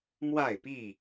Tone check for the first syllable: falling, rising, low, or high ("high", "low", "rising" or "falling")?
falling